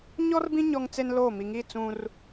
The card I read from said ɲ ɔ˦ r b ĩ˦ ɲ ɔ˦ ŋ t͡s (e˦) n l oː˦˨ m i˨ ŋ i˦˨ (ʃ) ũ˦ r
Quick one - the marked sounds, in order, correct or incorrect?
correct, incorrect

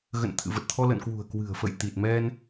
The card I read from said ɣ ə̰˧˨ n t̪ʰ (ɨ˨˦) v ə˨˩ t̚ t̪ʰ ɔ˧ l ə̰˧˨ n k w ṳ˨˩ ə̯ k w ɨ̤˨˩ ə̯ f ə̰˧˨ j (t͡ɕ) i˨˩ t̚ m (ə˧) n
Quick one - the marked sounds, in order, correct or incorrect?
incorrect, incorrect, incorrect

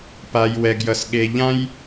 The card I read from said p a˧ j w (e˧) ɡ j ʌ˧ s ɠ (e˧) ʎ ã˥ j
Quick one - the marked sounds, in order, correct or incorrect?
incorrect, correct

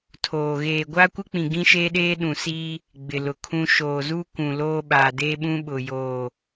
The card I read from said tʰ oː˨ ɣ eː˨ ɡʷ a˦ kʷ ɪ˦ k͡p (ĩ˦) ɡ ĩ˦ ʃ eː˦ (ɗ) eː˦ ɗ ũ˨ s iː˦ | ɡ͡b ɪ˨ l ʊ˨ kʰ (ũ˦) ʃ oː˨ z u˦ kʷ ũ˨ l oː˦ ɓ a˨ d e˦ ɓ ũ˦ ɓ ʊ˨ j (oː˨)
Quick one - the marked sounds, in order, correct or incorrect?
incorrect, correct, correct, correct

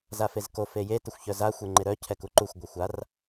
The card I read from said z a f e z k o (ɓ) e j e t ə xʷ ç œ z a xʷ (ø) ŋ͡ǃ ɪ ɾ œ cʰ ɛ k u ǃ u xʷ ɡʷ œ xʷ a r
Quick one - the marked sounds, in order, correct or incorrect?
incorrect, incorrect

